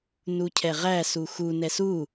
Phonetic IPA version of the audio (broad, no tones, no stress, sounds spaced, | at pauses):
n u cʰ ɛ ʁ æ s u x u n ɛ s u